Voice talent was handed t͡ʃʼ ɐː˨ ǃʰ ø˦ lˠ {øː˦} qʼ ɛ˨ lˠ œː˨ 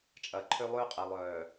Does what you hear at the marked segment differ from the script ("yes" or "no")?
no